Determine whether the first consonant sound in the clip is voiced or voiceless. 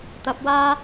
voiceless